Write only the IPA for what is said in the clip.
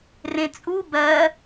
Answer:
r ẽ t͡sʼ u b ɜ

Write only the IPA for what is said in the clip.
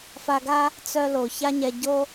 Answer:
f a˧ ɡ a˦ | t͡s œ˧ l o˨ ç a˦ ɲ ɛ˧ ɟ o˦

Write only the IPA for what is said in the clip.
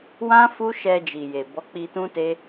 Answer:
w ã˦ f u˦ ʃ ɛ˧ d͡ʒ i˨ j e˨ b ɔ˨˦ k͡p i˧ t ũ˦ t e˦

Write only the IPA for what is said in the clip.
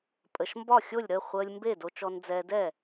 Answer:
pʼ ə˧ ʃ m b ɒ˥˩ xʲ o˥˩ lʲ ɾ ə˥˩ χʷ əː˧ lʲ m b e˥˩ d o˧ t͡ʃ ɔ˧ n d͡z ɛː˧ d ɛ˥˩

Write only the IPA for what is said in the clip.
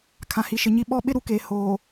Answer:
kʰ ã˨ h i˨ ʃ ɪ˨ ɲ i˦ ɓ ɔ˦ ɓ ɪ˦ ɾ u˨ k eː˨ h oː˨

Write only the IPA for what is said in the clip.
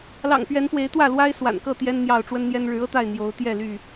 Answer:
l ɑ̰˨˩ ŋ p ɥ ɛ˨˦ n p w e˨˦ ɪ̯ t̪ w ä˥˨ l w a˦ ɪ̯ s w a̰˨˩ n k ɤ˥˨ t̪ j ɛ˦ n n̪ j ɑ˥˨ ʊ̯ ʈ͡ʂ w ə˦ n n̪ j ɛ˦ n ɻ ɻ̩˨˦ ɤ˦ t̪ a˥˨ ɪ̯ n̪ j o˨˦ ʊ̯ t̪ j ɛ˥˨ l y˥˨

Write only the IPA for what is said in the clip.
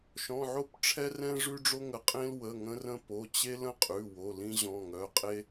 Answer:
ʃ ɔ̃˩˧˩ ʕ o˥ p ʈ͡ʂʰ ɛ˥ r ɛ̃˥ ʐ ʉ˥ ɖ͡ʐ o˥ ŋ ə˩˧˩ qʼ ẽ˥ l w ə˩˧˩ ŋ ə̃˥ r ə̃˥ p o˩˧˩ t͡ɕ e˥ l ə̃˥ qʼ ʉ˩˧˩ w o˩˧˩ l ĩ˥ ʑ ɔ̃˩˧˩ ŋ œ˩˧˩ qʼ e˥

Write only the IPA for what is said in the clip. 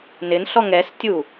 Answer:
n ɪ n ɬ ɔ ŋ ɛ s tʲ u

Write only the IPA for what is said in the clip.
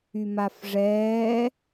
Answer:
y m a f ʐ ɛː

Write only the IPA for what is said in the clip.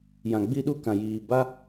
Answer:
j ã˨ ɡ͡b i˦ ɗ u˦ k ã˨ j iː˨ b a˦

